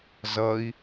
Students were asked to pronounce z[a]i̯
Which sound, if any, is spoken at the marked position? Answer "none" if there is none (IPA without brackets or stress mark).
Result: ʌ